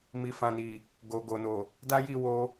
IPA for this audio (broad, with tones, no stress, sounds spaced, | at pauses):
m i˨ f ã˨ n i˨ | ɡ o˨ ɡ o˨ n o˨ | d a˦ j i˦˨ w o˧